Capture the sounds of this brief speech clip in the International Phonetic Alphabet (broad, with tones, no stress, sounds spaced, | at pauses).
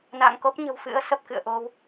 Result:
n a̰ː˧˨ ŋ k o˦˥ p̚ ɲ ə̤˨˩ w f ɨ̰˧˥ ə̯ s ə˨˩ p̚ k ɨ̰˧˨ ə̯ ʔ o˧ w